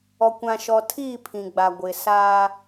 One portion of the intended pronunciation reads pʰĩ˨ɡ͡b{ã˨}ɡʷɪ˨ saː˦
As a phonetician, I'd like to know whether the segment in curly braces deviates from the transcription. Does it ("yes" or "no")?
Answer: yes